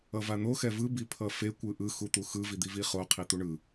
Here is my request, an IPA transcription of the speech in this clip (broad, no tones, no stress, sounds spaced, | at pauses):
ʌ v a n̪ o x ɛ v ɯ b i pʰ ʌ f e kʷ ɯ ʔ ɯ x u t̪ u x ɯ v i d̪ i v i χ o qʰ i t̪ u ɳ ɯ